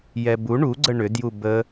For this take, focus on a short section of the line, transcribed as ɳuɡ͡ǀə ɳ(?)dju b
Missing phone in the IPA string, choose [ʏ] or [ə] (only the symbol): ʏ